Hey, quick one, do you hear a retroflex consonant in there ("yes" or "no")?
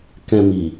no